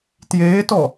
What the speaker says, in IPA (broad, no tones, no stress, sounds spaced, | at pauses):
t j eː t ɔ